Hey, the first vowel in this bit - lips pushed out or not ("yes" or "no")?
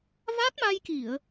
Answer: no